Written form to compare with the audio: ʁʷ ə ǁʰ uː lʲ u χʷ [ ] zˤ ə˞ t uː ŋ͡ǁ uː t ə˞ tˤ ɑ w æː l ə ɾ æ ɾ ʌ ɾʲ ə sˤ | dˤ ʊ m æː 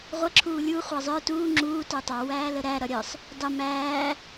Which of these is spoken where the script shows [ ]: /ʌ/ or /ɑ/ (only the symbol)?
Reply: ɑ